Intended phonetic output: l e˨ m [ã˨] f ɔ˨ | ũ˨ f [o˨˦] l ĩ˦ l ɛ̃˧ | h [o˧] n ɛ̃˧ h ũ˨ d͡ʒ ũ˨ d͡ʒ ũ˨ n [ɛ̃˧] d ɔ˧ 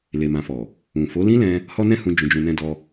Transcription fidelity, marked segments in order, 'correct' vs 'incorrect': correct, correct, incorrect, correct

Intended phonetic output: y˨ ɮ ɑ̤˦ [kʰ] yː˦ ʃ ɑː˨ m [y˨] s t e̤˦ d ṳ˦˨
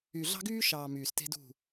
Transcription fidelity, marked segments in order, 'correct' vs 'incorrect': incorrect, incorrect

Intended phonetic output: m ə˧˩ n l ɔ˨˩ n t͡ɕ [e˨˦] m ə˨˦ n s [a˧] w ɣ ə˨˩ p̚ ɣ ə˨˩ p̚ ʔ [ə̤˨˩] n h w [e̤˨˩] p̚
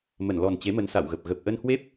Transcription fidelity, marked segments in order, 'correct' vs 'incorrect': correct, incorrect, incorrect, incorrect

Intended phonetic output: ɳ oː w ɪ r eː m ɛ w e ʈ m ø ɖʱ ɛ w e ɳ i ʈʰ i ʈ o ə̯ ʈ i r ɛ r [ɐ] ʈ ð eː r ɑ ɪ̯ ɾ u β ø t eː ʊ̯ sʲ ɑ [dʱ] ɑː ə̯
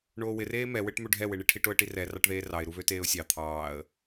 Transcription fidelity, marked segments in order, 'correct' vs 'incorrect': incorrect, incorrect

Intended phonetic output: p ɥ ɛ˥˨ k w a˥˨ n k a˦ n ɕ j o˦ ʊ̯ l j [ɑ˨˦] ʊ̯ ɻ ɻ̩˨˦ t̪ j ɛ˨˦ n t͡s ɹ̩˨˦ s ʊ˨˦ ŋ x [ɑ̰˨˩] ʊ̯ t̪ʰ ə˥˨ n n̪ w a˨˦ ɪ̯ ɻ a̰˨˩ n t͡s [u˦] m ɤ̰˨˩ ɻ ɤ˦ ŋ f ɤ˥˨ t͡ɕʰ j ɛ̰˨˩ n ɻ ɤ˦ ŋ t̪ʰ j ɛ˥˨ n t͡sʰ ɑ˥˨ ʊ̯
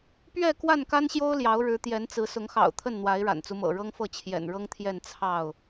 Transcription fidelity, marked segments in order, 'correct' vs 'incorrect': correct, correct, correct

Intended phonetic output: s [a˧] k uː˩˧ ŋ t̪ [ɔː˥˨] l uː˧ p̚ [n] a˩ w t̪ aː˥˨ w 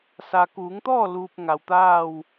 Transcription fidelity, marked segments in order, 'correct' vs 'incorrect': incorrect, correct, incorrect

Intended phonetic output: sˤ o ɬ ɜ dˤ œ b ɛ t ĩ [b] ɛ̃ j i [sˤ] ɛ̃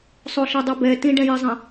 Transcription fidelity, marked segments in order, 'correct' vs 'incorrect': incorrect, incorrect

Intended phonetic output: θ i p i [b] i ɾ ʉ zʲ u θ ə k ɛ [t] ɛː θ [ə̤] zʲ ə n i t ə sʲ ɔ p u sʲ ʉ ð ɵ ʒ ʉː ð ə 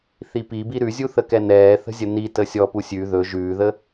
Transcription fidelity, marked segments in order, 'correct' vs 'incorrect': correct, incorrect, correct

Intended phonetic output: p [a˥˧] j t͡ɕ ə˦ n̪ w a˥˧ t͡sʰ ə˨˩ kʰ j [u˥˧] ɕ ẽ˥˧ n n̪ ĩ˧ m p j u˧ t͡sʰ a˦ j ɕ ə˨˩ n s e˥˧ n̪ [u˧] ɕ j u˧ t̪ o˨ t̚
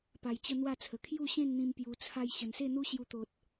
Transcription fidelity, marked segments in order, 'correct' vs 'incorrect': incorrect, correct, incorrect

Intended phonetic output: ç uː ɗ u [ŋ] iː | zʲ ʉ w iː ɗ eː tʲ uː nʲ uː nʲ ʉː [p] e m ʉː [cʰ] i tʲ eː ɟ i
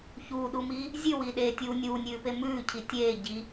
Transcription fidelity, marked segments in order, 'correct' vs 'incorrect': incorrect, correct, correct

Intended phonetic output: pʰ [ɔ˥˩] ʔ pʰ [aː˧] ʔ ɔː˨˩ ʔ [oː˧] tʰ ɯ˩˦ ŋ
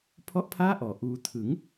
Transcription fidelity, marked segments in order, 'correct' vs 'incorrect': correct, incorrect, incorrect

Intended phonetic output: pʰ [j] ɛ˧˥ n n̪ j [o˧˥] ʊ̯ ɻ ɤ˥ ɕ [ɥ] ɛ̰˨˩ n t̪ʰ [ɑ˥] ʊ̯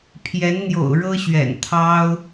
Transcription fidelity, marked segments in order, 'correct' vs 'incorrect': correct, incorrect, correct, correct

